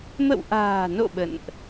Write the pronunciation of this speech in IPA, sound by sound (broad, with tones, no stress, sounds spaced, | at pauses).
m ə̰˧˨ w ʔ a̤ː˨˩ n o̰˧˨ ɓ ə̰˧˨ n ʔ